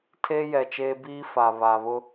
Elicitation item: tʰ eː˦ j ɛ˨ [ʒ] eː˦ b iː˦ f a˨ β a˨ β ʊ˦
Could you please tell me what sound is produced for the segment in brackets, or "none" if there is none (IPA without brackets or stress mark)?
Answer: t͡ʃ